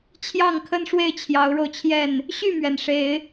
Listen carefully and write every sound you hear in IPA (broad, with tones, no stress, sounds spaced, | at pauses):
t͡ɕʰ j ɑ˥˨ ŋ kʰ ə˦ n ʂ w e˥˨ ɪ̯ t͡ɕʰ j ɑ˨˦ ʊ̯ ɻ o˧ ʊ̯ t͡ɕʰ j ɛ˥˨ n | ɕ y˥˨ m ɥ ɛ˩ n ʂ e˨˦ ɪ̯